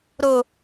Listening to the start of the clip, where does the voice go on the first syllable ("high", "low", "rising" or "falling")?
low